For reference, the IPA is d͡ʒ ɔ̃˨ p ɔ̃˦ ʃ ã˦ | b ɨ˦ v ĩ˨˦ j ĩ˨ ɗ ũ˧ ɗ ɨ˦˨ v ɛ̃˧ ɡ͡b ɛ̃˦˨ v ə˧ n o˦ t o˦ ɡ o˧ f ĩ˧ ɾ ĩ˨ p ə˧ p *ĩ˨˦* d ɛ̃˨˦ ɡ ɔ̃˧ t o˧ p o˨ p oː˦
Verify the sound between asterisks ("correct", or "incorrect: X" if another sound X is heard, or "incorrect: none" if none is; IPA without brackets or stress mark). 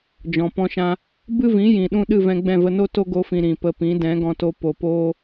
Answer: correct